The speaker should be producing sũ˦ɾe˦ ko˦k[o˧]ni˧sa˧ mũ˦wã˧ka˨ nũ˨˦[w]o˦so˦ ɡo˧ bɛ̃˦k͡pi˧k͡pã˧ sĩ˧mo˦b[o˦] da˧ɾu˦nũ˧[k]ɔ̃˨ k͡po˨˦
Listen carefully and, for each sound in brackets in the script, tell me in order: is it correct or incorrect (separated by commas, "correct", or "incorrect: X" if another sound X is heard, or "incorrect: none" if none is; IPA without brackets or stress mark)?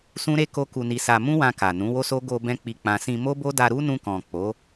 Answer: incorrect: u˧, correct, correct, correct